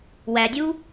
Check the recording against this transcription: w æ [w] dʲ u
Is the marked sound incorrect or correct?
incorrect